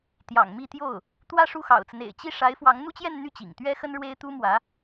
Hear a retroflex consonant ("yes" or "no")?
yes